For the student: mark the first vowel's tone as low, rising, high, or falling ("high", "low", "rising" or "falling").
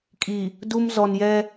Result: low